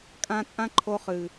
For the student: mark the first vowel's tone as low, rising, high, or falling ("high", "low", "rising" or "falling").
high